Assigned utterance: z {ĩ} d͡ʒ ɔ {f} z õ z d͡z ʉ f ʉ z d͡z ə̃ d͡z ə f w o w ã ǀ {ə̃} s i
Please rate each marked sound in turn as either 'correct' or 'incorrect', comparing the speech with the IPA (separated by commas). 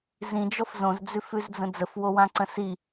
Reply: correct, correct, correct